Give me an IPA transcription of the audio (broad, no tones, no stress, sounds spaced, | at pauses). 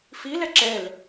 f i l ɛ ǁ ɛ l